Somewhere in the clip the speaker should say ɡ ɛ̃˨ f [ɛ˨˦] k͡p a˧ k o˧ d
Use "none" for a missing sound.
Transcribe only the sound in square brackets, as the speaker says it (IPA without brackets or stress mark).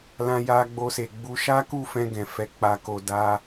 ɛ˨˦